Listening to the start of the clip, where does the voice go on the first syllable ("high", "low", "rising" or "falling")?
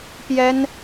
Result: high